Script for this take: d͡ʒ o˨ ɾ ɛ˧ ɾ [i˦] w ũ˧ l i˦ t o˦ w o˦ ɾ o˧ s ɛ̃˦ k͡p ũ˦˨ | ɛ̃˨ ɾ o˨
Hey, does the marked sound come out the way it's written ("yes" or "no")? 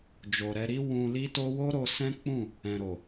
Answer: yes